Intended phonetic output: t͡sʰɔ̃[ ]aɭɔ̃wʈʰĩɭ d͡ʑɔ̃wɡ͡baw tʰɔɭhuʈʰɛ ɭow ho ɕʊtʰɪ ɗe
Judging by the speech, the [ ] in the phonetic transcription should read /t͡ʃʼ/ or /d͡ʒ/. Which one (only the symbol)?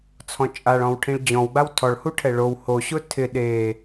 t͡ʃʼ